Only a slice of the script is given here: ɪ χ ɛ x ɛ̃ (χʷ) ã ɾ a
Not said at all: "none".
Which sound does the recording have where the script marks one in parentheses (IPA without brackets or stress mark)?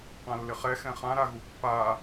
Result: χ